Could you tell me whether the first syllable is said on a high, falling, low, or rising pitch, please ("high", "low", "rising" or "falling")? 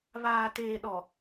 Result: low